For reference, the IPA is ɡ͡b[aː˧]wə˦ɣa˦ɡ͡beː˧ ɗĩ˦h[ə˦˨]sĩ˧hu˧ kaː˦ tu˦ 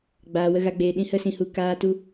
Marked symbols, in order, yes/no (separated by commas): yes, no